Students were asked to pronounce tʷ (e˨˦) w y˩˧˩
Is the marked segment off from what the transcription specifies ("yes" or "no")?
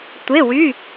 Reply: yes